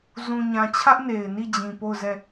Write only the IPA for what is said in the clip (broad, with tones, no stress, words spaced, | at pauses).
zũ˨ɲã˨t͡ɕʰä˦ʔ ne˨ɪ̯ni˦˨ d͡ʑĩ˨po˦˨ʊ̯ zɛ˦˨